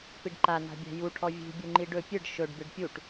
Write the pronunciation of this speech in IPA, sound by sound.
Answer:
p i ɖ ǃ a n a̤ bʲ æ̤ j u ʈʰ ɔ vʲ ṳ bʲ u ŋ͡ǃ i ɖ ɵ pʲ ɨ ɖ ʃ ɵ ɖ b ɨ ɖ pʲ u ʈ

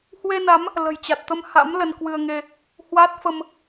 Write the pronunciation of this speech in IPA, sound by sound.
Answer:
h w e˧ n a˨˦ m | l ə̤˨˩ j t͡ɕ a˨˩ t̚ t̪ ə˧ m h a̰˧˥ m l ə˧ n k w ɨ˧ ə̯ ŋ e˧ | h w a˦˥ t̚ f ə˧ m

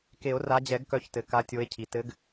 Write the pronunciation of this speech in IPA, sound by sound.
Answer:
k e˨˩˦ o̯ r a˨˦ d͡ʑ ɛ˨˩˦ ɡ k œ˨˦ ç t ɘ˩ k a˨˦ tʲ o˨˦ e̯ cʰ i˩ t ɘ˨˦ ɡ

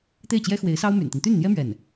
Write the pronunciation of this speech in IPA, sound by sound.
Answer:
t̪ e˥˩ ɪ̯ t͡ɕ j ɛ˥ x w e˧˥ ɪ̯ s ɑ˥ ʊ̯ m y̰˨˩ n t̪ i˦ n t̪ y˥˩ n n̪ j ɛ˥ m ɥ ɛ˥˩ n

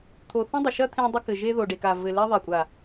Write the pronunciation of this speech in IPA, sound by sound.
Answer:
t̪ʰ o˨ θ ɔ̃˦ dˤ ɐ˨ ʃ ɐ˦ t̪ʰ ẽ˦ dˤ ɘ˦ k ɘ˨ ʒ e˦ ð o˨ ɖ e˨ k a˨ v ɘ˨ l ɛ˦ ðˤ e˨ kʷʼ a˨

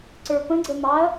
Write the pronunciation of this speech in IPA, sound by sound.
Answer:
ǀ ə˞ p ə̃ ɡ͡ǀ ə m ɑ ɐ̯

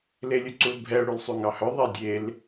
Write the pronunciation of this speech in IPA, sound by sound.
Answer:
l e lʲ ɵ ǀ u l bʱ ɛ ʊ̯ ɽ y l sˤ y ŋ ɑ h œ ðˤ ɛ dʲ e l

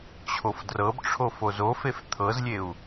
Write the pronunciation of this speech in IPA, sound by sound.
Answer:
t͡ɕʰ o f d r ɤ b ʈ͡ʂʰ o f o z o f e f t̪ʰ ɤ z lʲ e u̯

